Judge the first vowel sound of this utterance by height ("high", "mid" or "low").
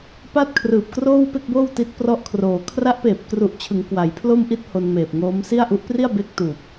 low